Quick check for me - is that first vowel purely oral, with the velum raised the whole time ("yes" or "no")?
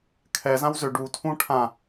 yes